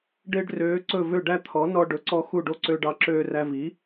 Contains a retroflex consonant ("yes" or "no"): yes